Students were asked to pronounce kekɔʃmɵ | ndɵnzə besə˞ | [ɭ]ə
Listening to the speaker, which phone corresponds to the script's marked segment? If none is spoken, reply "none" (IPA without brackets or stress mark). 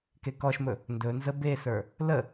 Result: l